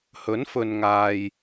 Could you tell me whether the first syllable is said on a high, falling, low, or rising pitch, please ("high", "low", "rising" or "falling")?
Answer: rising